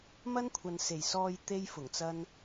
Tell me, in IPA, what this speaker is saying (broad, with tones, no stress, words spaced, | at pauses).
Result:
mɐ˥nkʷʰɐ˨nse˨˩j sɔː˨j t̪e˥jfʊ˨˩ŋt͡sɐ˥n